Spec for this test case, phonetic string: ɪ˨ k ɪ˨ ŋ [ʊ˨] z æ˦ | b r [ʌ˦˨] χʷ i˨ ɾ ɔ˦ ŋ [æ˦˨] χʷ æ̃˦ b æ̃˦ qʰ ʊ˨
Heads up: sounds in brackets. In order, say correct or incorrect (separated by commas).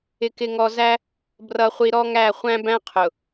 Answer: incorrect, incorrect, correct